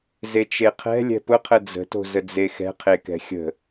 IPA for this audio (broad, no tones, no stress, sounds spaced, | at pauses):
z e t͡ʃ e qʰ ɛ̤ lʲ ɛ̤ p ʊ qʰ ə d͡z ə̤ t o̤ z ə d͡z e x ɛ̤ qʰ e k ɛ̤ xʲ ə̤